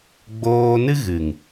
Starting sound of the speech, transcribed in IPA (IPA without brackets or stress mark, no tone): ɡ͡b